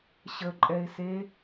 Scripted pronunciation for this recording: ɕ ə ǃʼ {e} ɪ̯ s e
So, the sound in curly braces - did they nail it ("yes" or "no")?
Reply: no